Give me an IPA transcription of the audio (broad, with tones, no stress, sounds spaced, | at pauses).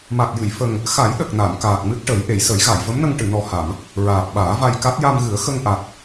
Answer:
m a˨˩ t̚ j ɨ˨˩˨ j f ə˨˩ ŋ | x a˨˩˦ j ɗ ə˨˩ k̚ n a˨˩˨ m k aː˨˩ k̚ m ɨ˦˥ t̚ ʈ ə˨˩˦ j ʔ e˨˩˨ j s ə˨˩˦ j ɣ a˨˩˨ j v ə˧˥ m n ə˧ ŋ ʈ ɨ˨˩˨ n ɔ˨˩ h a˨˩˨ m | ɹ aː˨˩ p̚ ɓ aː˨˩˦ v a˧ j k a˦˥ t̚ j a˧ m ɣ ɨ˨˩˦ ə̯ x ə˧ ŋ ʔ a˨˩ t̚